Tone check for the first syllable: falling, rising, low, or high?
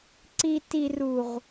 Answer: low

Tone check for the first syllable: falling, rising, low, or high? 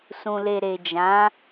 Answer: low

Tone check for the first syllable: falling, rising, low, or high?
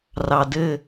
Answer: low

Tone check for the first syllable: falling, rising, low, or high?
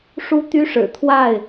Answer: high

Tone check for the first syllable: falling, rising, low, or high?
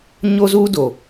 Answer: high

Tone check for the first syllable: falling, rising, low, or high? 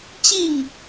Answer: falling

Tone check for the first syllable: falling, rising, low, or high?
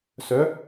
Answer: rising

